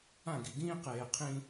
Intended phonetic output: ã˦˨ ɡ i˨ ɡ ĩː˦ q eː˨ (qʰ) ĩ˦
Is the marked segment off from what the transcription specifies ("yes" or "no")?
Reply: no